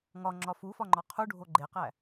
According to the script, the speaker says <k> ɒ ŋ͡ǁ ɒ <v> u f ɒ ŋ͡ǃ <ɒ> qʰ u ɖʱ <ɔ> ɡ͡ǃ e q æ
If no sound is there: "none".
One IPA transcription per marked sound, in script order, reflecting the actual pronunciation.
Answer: ŋ, f, ɒ, o

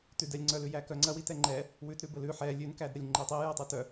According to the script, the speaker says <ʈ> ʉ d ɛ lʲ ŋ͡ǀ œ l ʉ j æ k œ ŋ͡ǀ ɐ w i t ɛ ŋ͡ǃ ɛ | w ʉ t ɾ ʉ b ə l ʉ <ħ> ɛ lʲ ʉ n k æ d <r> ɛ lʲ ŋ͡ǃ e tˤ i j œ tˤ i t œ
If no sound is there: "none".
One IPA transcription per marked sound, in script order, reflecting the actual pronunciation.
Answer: t, ħ, ɾ

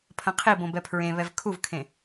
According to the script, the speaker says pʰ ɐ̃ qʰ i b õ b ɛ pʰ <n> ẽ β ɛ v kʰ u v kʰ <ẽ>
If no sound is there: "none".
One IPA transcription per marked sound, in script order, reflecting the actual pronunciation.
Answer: ɹ, ẽ

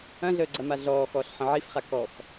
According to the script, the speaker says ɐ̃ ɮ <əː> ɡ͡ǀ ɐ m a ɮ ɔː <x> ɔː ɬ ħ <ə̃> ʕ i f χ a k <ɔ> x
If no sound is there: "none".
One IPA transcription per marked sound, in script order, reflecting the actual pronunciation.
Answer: əː, x, ə̃, ɔ

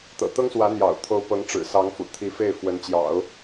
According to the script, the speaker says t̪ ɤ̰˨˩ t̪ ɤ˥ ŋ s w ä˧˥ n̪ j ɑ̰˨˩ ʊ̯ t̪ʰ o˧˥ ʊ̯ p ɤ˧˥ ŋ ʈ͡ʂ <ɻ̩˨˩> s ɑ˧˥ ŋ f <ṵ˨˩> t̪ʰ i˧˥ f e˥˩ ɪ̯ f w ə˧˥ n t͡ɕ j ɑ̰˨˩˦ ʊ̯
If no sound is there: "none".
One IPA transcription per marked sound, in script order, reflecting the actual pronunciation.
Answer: ɻ̩˨˩, ṵ˨˩

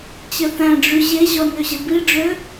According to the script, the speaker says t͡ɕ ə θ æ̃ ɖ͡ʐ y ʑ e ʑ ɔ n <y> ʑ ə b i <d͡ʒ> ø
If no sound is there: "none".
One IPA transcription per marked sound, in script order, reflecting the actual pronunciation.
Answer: ø, ɖ͡ʐ

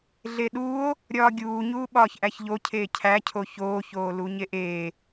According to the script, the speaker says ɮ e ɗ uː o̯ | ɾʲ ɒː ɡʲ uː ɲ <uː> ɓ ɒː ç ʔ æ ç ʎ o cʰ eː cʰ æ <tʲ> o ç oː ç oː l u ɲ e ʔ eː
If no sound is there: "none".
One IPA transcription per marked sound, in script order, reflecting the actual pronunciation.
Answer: uː, cʰ

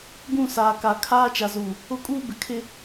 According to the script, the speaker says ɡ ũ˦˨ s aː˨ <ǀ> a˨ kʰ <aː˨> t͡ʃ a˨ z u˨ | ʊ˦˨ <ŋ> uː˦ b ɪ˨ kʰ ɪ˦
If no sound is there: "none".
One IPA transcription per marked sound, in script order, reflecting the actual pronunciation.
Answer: k, aː˦, kʼ

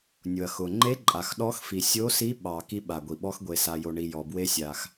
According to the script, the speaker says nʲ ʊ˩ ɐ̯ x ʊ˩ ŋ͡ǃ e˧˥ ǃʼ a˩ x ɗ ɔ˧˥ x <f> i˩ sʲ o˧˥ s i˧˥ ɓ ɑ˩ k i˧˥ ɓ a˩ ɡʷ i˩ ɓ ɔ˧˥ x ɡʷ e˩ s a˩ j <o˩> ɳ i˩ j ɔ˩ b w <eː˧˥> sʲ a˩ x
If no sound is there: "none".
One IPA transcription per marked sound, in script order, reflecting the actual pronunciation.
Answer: f, o˩, e˧˥

